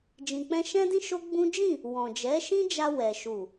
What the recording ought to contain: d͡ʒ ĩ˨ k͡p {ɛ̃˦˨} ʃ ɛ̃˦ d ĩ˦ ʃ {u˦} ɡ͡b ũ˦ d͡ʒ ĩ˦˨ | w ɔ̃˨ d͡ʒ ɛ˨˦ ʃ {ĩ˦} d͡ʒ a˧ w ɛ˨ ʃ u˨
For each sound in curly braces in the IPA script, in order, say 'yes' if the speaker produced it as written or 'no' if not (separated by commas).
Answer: no, no, yes